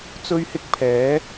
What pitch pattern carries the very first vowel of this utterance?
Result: high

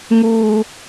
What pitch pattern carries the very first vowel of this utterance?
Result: high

